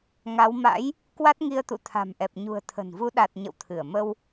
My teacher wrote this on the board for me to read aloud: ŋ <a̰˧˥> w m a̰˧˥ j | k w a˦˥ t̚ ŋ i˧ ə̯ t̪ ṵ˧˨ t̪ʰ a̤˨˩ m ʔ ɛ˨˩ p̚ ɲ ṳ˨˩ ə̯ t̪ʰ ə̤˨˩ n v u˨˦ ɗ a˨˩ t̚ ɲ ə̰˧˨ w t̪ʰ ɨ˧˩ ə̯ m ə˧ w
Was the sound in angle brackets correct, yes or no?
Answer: no